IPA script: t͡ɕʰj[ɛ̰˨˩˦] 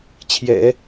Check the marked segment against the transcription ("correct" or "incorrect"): correct